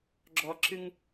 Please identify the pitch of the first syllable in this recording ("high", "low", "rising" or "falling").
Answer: high